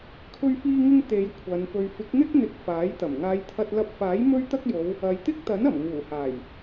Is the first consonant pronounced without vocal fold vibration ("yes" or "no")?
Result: yes